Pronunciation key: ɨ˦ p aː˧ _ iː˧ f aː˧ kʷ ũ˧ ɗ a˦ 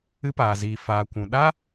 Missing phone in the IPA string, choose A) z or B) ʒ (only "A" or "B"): A